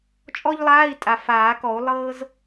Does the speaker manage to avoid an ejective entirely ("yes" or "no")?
no